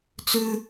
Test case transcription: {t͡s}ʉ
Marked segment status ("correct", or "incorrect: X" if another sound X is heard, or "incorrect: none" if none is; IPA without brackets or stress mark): correct